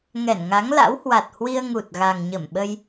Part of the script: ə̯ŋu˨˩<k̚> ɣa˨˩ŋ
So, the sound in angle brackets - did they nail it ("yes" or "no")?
no